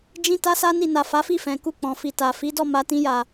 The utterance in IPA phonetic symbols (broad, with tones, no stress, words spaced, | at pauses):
d͡ʒĩ˦ta˦sa˦ni˦˨ na˨ fa˨˦fi˦˨fɛ̃˨ ku˧k͡pɔ̃˨fi˨ta˨ fi˨˦dɔ˦˨ma˧tĩ˧ ja˨